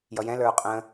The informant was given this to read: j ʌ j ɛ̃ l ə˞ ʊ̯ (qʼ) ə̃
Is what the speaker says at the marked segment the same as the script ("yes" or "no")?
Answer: yes